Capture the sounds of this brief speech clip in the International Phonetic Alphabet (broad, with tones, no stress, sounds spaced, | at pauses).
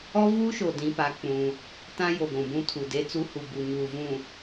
ɔ˦ v uː˦ ʃ o˨ d ĩ˦ p a˦ k͡p ũ˦ | t ã˦ j o˨ ɡʷ ũ˨ b ũ˦ tʰ u˨ d e˦ t͡s u˦ h u˨ b u˨ ɲ uː˨ v ũ˨